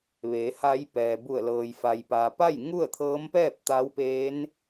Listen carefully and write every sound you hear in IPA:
ʋ eː˩˧ h a˧˥ j p ɛː˩ b u˧˩ ə̯ l ɤː˩ j f a˩ j p aː˩ p a˥˨ j ŋ u˥˨ ə̯ t̪ʰ ɤː˧˥ m p ɛː˥˨ p̚ t̪ a˧˥ w p eː˧˥ n

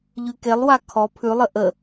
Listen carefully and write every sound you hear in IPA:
ʎ ʉ k e lˠ w a kʰ ɔ pʰ ʉ lˠ ə ʔ ə

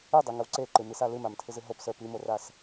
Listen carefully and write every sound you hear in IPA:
ɨ dˤ i ŋ ə w ǀ e ǃ ɨ m i s a l ɨ m a m tʰ ɨ z ɨ ɦ o p s ə˞ p i m o r a s

